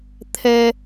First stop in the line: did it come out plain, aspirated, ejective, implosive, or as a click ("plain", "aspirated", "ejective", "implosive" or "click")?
aspirated